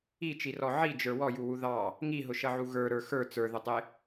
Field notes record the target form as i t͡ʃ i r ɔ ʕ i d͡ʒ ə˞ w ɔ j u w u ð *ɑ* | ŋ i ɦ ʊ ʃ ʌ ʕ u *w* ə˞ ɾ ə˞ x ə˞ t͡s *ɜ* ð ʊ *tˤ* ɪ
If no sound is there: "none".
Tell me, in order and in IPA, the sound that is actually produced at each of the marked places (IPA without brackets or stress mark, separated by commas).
ɑ, ɣ, ə˞, tˤ